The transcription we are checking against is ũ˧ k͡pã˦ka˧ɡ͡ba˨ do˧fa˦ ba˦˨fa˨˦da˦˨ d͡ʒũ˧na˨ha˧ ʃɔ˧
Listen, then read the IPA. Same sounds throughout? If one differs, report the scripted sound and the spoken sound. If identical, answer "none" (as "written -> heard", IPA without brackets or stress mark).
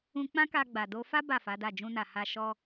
none